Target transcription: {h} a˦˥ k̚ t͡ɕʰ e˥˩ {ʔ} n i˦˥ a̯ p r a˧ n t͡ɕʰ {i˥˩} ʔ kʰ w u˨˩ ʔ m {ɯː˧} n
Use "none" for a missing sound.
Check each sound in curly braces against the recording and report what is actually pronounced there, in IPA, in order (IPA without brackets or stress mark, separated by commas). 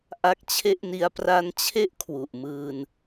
ʔ, ʔ, e˥˩, ɯː˧